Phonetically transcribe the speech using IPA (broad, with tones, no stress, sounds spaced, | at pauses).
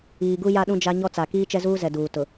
iː˨ ɡ u˦ j a˦ ɗ ũ˦ d͡ʒ a˦ ɲ ɔ˦ t͡s a˨ k iː˦ t͡ʃ ɛ˦ z uː˦ z ɛ˨ d uː˨ t ʊ˨